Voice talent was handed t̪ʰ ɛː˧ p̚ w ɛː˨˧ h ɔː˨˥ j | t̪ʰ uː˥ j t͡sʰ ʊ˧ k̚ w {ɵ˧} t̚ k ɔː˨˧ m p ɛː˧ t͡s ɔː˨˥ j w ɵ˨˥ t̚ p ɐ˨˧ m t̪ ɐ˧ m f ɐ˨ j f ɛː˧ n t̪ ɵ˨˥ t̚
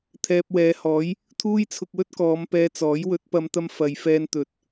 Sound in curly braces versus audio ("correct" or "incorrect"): incorrect